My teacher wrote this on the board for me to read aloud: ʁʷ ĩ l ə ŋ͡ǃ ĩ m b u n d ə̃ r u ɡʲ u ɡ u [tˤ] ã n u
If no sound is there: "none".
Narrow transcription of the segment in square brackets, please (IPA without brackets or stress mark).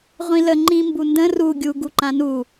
ǃ